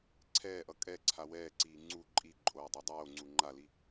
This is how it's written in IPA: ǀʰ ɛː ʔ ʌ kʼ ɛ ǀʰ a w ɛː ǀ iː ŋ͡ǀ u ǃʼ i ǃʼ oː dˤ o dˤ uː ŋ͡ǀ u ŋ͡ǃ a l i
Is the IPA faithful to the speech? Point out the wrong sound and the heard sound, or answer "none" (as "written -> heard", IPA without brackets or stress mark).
uː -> oː